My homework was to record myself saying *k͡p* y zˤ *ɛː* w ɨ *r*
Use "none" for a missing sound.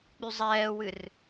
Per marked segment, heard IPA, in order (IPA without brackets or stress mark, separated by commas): k͡p, ɛː, r